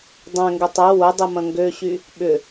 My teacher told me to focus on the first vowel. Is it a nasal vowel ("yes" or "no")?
yes